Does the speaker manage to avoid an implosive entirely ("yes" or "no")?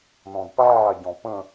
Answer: yes